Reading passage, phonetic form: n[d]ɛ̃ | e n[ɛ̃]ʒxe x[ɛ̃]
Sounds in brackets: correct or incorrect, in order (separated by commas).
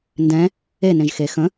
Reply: correct, incorrect, incorrect